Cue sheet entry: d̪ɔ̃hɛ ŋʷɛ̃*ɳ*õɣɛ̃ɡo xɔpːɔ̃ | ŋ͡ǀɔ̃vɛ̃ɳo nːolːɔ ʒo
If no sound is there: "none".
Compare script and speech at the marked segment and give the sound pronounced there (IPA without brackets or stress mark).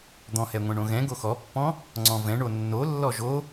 ɳ